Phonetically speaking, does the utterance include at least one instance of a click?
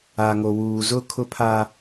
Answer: no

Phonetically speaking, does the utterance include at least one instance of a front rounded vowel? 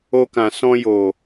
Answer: no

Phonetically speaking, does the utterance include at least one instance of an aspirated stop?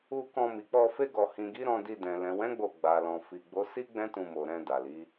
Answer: no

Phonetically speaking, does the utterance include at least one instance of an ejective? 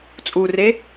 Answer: yes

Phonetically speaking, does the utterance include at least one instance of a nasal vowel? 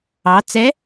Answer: no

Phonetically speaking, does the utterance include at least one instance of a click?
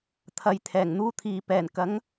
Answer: no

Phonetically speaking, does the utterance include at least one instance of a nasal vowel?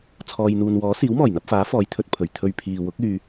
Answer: no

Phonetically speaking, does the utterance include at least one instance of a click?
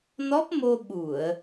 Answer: no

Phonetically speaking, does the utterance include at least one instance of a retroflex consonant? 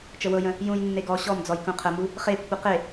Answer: no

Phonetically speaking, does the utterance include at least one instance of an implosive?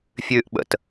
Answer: yes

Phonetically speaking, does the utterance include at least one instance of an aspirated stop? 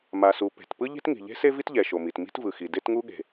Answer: no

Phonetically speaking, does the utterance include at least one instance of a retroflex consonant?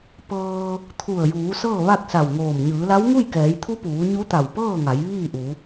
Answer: no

